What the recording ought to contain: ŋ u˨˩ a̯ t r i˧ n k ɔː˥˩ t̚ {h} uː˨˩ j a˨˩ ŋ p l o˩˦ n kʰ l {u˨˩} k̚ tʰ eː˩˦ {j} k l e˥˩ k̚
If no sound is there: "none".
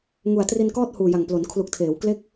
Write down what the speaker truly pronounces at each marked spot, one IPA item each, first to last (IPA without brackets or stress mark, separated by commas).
h, u˨˩, w